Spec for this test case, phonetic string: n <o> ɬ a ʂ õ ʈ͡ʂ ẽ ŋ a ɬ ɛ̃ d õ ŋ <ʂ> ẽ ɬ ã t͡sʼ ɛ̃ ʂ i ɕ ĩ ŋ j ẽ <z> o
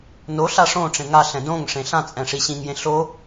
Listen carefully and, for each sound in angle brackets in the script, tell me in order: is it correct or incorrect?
correct, correct, incorrect

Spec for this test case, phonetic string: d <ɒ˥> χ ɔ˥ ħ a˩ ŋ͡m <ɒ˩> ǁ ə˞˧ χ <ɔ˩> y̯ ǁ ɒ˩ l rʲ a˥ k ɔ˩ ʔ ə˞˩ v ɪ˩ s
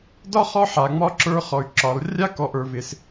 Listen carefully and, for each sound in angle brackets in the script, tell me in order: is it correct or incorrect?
correct, incorrect, correct

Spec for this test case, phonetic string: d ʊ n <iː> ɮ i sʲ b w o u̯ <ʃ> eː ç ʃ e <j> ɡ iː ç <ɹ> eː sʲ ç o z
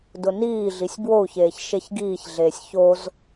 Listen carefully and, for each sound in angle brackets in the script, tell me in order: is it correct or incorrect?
correct, incorrect, incorrect, incorrect

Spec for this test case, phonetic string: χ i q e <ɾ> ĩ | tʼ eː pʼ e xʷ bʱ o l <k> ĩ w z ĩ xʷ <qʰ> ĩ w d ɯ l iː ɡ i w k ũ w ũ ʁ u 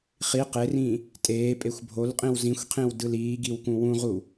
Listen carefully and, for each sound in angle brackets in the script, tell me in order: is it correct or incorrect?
incorrect, incorrect, correct

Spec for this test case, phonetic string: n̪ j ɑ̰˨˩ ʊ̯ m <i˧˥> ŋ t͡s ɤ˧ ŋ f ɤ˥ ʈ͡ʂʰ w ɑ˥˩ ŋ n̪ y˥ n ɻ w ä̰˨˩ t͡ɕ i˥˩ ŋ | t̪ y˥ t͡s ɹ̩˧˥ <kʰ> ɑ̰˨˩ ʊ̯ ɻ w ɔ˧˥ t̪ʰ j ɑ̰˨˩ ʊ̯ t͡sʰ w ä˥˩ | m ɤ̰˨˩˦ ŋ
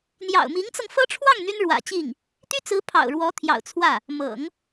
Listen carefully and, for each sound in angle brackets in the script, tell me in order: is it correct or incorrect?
correct, incorrect

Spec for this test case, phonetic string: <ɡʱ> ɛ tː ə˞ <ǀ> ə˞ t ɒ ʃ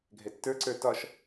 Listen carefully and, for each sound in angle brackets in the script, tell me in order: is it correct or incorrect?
correct, correct

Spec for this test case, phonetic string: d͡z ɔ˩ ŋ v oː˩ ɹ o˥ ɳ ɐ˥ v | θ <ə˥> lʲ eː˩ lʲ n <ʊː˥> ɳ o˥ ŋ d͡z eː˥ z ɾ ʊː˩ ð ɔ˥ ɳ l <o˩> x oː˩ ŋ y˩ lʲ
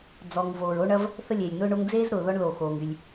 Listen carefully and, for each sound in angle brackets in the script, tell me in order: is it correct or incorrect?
correct, correct, correct

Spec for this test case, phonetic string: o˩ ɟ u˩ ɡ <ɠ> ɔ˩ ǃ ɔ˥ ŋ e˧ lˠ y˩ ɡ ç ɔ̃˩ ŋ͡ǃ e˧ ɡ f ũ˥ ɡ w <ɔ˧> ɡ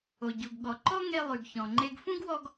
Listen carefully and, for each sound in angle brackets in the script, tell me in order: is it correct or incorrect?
correct, correct

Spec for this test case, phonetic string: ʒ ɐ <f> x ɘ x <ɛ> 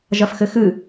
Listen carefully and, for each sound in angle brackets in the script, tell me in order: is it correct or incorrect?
correct, incorrect

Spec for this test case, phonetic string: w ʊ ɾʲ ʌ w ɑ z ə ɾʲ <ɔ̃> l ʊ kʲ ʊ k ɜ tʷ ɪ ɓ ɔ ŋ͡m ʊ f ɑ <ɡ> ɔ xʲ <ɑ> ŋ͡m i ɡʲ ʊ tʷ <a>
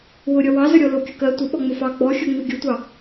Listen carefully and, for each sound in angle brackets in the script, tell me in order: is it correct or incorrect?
incorrect, incorrect, incorrect, incorrect

